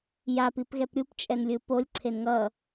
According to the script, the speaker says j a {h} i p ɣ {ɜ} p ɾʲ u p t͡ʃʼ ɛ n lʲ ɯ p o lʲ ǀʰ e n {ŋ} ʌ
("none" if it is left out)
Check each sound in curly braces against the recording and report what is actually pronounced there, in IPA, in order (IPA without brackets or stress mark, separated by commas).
p, ɛ, ŋ